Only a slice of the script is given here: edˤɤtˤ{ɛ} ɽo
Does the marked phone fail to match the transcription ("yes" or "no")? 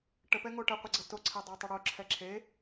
yes